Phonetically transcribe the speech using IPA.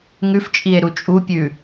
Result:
ŋ ʉ f t͡ʃʼ i e̯ ɾ u t͡ʃʼ u pʲ ʉ

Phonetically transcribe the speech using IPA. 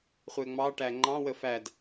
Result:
χʷ ɛ ŋ͡m ɑ ʈ æ ŋ͡ǃ ɑ̃ w ə f æ d

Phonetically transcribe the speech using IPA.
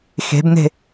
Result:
x e̤ b n̪ e̤

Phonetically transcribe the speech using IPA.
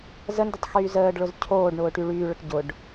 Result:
z ə n d ə tˤ x yː z əː ɖ ɭ ʊ z cʰ oː ɖ ɳ ʊː ʈ y ɭ yː ɭ ə ʈ ɟ ʊ ɖ

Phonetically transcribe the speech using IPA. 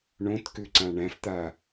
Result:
ɳ õ t k ʉ ǀ ã ɳ æ̃ f t̪ a

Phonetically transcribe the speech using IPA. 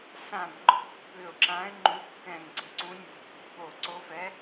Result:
s ã˧˩ b ŋ͡ǃ ɔ̤˧˥ b p ʏ˧˩ ʊ̯ ǁ ã˧˥ ɪ̯ ŋ͡ǃ u˧˥ kː ɛ̃˧˩ ŋ ǀ ə̤˧˩ ǀ ũ˧˥ nʲ ɔ̤˧˩ b ɔ̤˧˥ p o˧˩ ǀ o˧˥ f ɛ˧˥

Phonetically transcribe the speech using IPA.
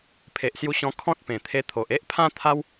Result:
pʰ e˨ ʔ s j u˧ ɕ ɔ̃˧ kʰ ɔ̃˦ t̚ p ẽ˨˩ t̪ʰ e˧ t̪ʰ o˨ ʔ e˦ ʔ pʰ ã˦ t̪ʰ a˦ w

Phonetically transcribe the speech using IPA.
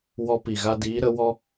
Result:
w ɔ˧ p i˨ ɣ a˧ d iː˨˦ ɾ ə˨˦ w ɔ˦

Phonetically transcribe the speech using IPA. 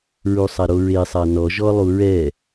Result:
ɹ u sˤ a ɾ o ɹ e sˤ a n ɔ ʒ ɔ lˠ u ɹ ɛ

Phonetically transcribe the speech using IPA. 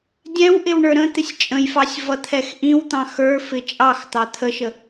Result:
dʲ ɛ̃ w ʔ ɪ w ɳ ə˞ ɾ ə̃ t̪ ɪ sʲ t͡ʃʼ ə̃ j f ɑ sʲ v ʌ t̪ʰ ɛ x ʔ ĩ w t̪ ɑ̃ x ə˞ f ɪ t͡ʃʼ ɑ x t̪ ɑ t̪ʰ ə ʃ ə

